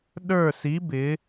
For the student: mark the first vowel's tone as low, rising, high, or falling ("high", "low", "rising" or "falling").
falling